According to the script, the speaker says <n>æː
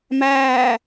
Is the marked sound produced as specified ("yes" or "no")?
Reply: no